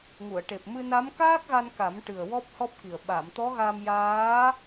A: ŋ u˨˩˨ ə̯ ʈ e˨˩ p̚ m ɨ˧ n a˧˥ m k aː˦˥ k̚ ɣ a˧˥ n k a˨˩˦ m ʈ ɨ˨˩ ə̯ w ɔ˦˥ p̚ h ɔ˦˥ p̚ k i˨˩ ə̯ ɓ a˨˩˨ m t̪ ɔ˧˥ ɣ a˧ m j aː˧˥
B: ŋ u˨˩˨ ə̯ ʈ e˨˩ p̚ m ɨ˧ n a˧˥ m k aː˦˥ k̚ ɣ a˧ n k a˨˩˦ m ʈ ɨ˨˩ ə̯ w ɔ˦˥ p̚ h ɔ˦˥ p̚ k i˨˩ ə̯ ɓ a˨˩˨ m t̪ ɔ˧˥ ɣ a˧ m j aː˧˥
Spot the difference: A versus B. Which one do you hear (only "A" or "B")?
B